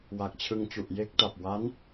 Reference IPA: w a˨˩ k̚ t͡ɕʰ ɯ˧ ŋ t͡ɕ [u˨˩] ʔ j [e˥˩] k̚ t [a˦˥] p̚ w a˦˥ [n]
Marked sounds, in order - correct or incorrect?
correct, correct, incorrect: a˨˩, correct

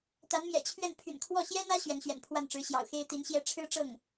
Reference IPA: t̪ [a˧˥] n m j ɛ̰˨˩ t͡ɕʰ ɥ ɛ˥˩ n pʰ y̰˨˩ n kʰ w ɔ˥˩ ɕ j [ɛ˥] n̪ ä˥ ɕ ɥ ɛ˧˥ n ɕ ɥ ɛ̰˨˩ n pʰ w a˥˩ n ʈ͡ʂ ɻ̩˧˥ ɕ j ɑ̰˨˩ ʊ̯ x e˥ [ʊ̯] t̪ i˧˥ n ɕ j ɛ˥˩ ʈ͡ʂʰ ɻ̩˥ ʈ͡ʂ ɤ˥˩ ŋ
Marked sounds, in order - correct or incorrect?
correct, correct, incorrect: ɪ̯

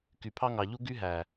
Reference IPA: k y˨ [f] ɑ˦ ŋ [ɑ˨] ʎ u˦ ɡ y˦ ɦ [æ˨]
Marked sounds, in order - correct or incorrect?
incorrect: pʰ, correct, correct

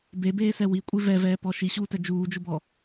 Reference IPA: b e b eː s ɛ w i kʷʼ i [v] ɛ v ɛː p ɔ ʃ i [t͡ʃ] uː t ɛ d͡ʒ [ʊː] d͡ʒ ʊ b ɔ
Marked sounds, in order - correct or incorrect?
correct, incorrect: ɕ, incorrect: uː

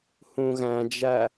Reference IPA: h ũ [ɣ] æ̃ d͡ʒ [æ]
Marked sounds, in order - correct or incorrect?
correct, correct

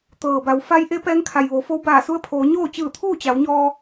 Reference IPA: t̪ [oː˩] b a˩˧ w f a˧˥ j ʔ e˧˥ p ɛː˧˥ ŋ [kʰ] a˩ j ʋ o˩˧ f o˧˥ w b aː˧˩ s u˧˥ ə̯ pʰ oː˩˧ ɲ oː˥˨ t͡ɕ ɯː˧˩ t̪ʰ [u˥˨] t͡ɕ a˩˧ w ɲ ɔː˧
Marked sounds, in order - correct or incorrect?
incorrect: ɤː˩, correct, incorrect: uː˥˨

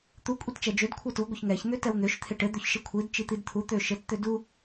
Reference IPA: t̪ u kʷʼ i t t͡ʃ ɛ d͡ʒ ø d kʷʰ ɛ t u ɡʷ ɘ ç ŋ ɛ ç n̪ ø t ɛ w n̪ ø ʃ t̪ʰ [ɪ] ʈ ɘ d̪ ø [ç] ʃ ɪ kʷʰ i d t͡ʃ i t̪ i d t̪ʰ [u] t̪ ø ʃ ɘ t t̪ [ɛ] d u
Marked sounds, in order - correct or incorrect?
correct, correct, correct, incorrect: ø

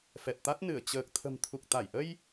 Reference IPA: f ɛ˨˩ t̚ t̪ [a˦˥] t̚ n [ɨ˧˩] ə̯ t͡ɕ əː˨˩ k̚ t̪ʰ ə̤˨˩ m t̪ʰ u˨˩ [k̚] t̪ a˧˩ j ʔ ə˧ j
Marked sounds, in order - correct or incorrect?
correct, correct, correct

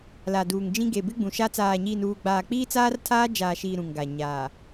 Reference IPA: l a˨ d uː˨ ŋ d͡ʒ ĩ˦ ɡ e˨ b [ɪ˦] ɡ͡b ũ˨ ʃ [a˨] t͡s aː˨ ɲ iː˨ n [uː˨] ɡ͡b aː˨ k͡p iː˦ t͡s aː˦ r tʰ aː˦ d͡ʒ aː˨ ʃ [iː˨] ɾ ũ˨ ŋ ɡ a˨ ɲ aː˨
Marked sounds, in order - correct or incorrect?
correct, incorrect: a˦, correct, correct

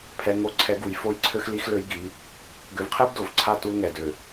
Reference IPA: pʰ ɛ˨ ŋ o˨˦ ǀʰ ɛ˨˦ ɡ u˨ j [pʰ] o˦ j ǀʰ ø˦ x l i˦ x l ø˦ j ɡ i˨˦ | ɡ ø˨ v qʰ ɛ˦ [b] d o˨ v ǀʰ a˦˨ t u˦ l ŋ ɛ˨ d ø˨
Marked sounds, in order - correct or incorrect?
incorrect: f, correct

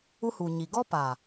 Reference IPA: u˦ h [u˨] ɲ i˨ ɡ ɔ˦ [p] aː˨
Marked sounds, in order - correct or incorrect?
correct, correct

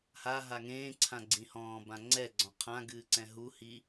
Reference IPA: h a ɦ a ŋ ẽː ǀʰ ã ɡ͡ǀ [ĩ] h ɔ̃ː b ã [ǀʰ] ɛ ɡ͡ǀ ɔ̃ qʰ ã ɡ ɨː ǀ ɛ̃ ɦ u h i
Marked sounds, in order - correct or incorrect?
correct, incorrect: ŋ͡ǀ

